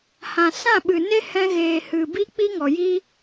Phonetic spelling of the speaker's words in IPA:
h ã˨ s ã˦˨ ɓ ɨ˨ n e˦ h ɛ̃˧ ɣ eː˨ h ɨ˨ b i˦ k͡p i˦ ŋ ɔ˨ j i˦

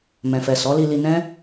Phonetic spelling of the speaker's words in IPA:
m ɛ̃˨ f ɛ˨ s ɔ˨˦ l i˧ l i˧ n ɛ̃˦

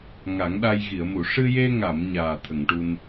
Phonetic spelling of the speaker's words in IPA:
ŋ a˨˩˦ ŋ ɗ a˧ j ɣ i˨˩˨ ə̯ m u˨˩˨ ʂ ɨ˧ j e˧ ŋ a˨˩˨ m ɲ aː˨˩ t̪ʰ ə˨˩˨ ŋ ʈ u˧ n

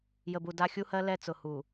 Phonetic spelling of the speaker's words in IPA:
j ə˨ b u˨ d a˦ xʲ u˦ h ɜ˦ l ɛ˦ t͡s ʊ˨ h u˨

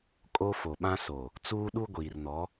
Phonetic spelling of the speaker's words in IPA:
kʼ o˦ f o˨ ɓ ã˦ s o˨ | t͡s uː˦ ɗ u˦ ɡʷ iː˨ r n ɔ˨˦

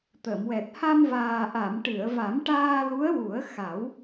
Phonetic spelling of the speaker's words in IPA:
t̪ ə˨˩˨ m w ɛ˨˩ t̚ h a˧ m v aː˨˩ ʔ a˨˩˨ m ʈ ɨ˨˩˨ ə̯ v a˨˩˦ m ʈ aː˧ l u˧˥ ə̯ w u˨˩˦ ə̯ x a˨˩˦ w

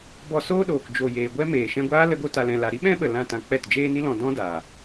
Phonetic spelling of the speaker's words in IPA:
b ɔ˧ s oː˦ ɗ oː˨ k d͡ʒ o˨ j eː˨ ɡʷ ɛ˧ m eː˨ ʃ ɛ̃˧ ɡʷ aː˦ l ə˧ ɡ o˧ t a˧ l ɛ̃˧ l a˧ ɾ i˦ ɓ ɛ̃˦ ɓ ə˨ l ã˦˨ t ã˧ k͡p ɛ˦˨ t d͡ʒ eː˦ n i˦ l ɔ̃˧ d ɔ̃˦ d aː˨

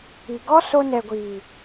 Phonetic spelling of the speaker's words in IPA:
i˨ ɡ ɔ˦ s o˧ n ɛ˨ ɡʷ iː˨

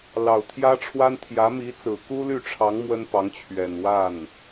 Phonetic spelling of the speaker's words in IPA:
l ɑ˨˩ ʊ̯ t̪ʰ j ä˥ ʈ͡ʂʰ w a˥ n t̪ʰ j ä˧˥ m i˧˥ t͡s ɹ̩˨˩ k u˥ l y˥˩ ʈ͡ʂʰ ɑ˧˥ ŋ m w ə˥ n p ɑ˧˥ ŋ t͡ɕʰ ɥ ɛ˨˩ n w a˥˩ n

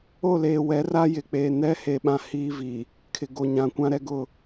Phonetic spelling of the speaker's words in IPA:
o˦˨ l eː˨ w ɛ˨˦ r a˦ j ɪ˨ k͡p eː˨ n ɛ˦ h e˨ ɓ ã˨ h iː˦ v i˨ | kʰ ɪ˨ ɡ o˨ ɲ ã˨ kʷ ã˦ ɾ ɛ˦ ɡ ʊ˦˨

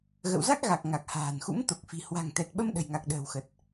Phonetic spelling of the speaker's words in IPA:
ɣ ə̰˧˨ w z a˦˥ k̚ ɣ a˨˩ k̚ ŋ a˨˩ k̚ h a̤ː˨˩ n x ṵ˧˥ m t̪ o˨˩ k̚ f i̤˨˩ h w a̤˨˩ ŋ t̪ ɛ˨˩ t̚ ɓ ə˧ m ɗ ə̤˨˩ j ŋ a˨˩ k̚ ɗ ə̤ː˨˩ w x ə˨˩ t̚

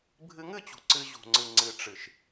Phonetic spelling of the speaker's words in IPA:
bʱ ɨ˧ ŋ ɨ˦˨ t͡ɕ ṳ˨ ǀ ɨ˧ ʑ ṳ˨ ŋ͡ǀ ɨ˨ ŋ͡ǀ ɨ˨ ʈ͡ʂ ɨ˨ ʃ

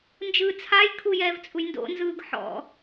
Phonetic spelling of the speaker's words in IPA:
n d͡ʒ ɯː t͡sʰ a j kʰ u j ɛː v t͡sʼ u j n d o̰ n z ɯː ɡ ħ ɔ̰

